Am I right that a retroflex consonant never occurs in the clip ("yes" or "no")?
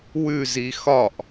yes